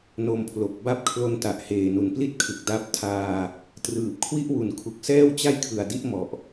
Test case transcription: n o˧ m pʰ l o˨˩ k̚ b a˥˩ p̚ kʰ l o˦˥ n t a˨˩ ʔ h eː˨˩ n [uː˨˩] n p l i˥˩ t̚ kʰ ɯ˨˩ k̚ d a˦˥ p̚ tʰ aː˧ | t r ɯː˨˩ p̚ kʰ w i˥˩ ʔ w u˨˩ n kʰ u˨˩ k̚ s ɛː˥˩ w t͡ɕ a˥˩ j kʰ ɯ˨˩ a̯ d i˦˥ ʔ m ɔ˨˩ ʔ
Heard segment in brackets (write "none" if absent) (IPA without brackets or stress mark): u˨˩